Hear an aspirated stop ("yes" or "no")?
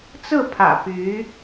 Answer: yes